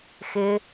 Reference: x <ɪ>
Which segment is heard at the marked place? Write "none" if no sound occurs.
ɪ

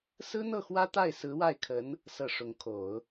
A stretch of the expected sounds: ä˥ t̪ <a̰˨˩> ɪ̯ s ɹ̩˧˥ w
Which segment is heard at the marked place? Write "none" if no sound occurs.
a˥˩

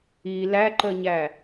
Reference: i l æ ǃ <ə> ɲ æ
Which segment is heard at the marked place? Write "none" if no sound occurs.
ə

